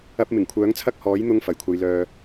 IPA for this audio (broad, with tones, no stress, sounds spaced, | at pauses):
ɐ˧ p̚ m ɪ˨˩ ŋ kʷʰ œː˨˥ ŋ t͡sʰ ɐ˥ k̚ h ɔː˨˥ j n̪ ʊ˧ ŋ f ɐ˨˩ j kʷʰ ɐ˨˧ j l œː˨